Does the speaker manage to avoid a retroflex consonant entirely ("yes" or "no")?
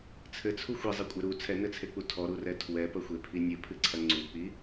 yes